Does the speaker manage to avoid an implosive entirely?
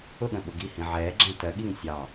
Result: no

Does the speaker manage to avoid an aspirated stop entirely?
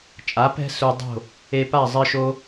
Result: yes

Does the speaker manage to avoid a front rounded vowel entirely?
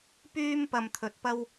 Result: no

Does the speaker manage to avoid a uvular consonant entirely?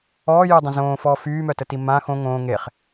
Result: no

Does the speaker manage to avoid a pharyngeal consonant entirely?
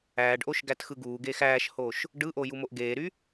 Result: yes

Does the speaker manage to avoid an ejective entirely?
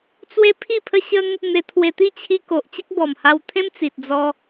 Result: yes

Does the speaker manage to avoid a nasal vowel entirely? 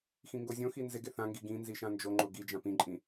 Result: no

